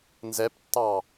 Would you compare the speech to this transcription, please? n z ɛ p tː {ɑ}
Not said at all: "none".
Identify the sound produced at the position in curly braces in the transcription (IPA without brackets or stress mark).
ɑ